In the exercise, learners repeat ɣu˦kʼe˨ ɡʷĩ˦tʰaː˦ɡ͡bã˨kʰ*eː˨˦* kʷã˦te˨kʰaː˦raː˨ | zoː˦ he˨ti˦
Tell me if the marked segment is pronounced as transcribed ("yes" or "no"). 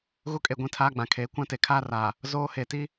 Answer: yes